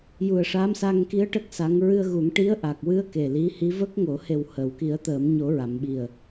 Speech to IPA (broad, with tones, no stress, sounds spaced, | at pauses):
j u˨˩ ə̯ ʂ a˧˥ m s a˧ ŋ k i˧˥ ə̯ ʈ ə˦˥ k̚ s a˧˥ ŋ ɹ ɨ˧ ə̯ ɣ u˨˩˦ ŋ ʈ i˧˥ ə̯ ʔ a˨˩ k̚ w ɨ˧ ə̯ k e˨˩ l i˧˥ h i˧˥ v ə˦˥ k̚ ŋ o˨˩˦ h e˨˩ w h əː˨˩˨ w k i˨˩˦ ə̯ t̪ əː˨˩˦ m ɲ o˨˩˦ ɹ a˨˩˨ m ɓ i˨˩ ə̯